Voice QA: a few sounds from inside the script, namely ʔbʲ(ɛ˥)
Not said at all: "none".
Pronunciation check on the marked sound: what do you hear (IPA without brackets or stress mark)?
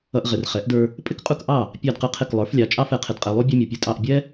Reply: ɛ˥